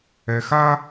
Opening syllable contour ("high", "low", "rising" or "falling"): low